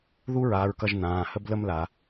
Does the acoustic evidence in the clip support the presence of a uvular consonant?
no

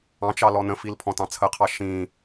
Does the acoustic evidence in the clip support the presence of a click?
no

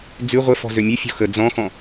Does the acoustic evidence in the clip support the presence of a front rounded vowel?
yes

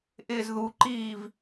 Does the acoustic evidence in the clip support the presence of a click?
yes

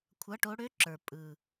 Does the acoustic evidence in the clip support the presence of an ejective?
yes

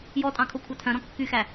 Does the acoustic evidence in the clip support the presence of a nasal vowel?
yes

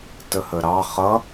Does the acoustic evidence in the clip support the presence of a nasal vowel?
no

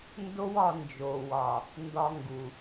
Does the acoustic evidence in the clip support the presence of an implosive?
no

